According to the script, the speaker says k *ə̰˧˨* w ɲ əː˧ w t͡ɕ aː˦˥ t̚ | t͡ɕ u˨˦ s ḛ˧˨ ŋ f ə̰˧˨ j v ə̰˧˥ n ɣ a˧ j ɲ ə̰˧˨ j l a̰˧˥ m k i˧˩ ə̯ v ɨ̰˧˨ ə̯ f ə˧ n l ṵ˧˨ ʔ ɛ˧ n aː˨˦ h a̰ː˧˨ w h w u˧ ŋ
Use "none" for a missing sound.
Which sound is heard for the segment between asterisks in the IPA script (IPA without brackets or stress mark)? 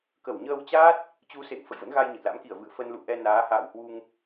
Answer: ə˧˩